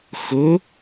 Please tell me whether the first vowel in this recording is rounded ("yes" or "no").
yes